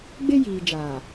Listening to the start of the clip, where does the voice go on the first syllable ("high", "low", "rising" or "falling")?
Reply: high